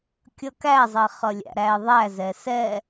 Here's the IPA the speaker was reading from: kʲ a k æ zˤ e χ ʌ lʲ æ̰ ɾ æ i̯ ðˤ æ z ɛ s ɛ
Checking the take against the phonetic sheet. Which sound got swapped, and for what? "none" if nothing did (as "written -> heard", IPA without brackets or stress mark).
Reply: a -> ʌ